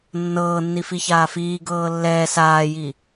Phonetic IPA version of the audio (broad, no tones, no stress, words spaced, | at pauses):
nːɤːnːifi çaːfiː ɡɤːlːɛː saːji